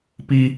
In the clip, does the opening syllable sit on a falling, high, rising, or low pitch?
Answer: high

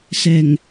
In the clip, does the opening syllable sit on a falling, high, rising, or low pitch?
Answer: low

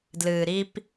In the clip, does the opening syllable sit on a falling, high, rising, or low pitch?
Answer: low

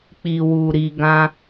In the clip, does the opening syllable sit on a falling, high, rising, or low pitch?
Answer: low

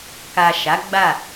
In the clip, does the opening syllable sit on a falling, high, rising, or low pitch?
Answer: low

